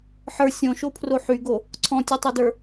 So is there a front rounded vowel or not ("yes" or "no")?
yes